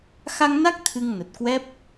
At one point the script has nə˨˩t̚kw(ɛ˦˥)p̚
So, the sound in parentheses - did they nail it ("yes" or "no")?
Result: yes